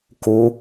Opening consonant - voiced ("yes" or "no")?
no